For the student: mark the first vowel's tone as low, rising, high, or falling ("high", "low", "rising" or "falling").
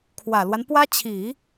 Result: low